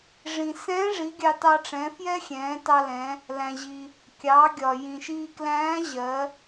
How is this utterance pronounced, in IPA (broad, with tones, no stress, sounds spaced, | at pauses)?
ʐ ĩ˩ s ɛ̃ː˧˥ ʐ i˩˧ ɡʲ ɑ˧ t ɑ˧ ʈ͡ʂ ɛ̃˩˧ f j ɛ˥ xʲ ɛ̃ː˩˧ t ɑ˧ l ɛ̃˩˧ | l æ̃˩ ʑ i˩ | kʲ ɑ˩˧ ɡʲ ɒ˩ j ĩ˩ ʃ iː˧ k l æ̃ː˧˥ ʑ ɜ˩˧